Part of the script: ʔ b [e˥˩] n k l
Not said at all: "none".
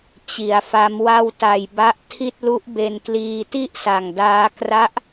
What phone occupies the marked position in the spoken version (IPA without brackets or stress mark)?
e˧